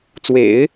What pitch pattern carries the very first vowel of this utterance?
low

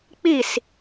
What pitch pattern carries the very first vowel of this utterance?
falling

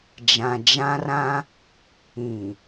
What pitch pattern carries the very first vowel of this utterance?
low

